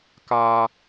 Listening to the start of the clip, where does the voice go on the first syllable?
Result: low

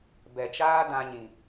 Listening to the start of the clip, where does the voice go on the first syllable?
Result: low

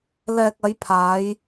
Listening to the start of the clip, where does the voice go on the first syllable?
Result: low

